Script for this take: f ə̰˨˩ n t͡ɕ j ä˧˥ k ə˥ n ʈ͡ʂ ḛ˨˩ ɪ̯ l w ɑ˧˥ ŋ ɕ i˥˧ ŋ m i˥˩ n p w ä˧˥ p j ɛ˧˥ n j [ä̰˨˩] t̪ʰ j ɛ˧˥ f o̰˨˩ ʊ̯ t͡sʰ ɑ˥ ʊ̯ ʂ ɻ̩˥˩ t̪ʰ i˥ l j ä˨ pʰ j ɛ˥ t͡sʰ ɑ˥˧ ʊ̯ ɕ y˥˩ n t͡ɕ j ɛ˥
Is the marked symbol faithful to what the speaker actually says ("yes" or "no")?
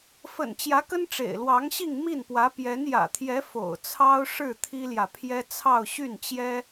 yes